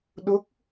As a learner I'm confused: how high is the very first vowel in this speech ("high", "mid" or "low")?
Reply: mid